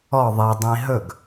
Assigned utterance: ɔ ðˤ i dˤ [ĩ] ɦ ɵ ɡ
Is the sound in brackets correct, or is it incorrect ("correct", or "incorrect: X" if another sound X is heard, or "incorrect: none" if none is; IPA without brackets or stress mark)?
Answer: correct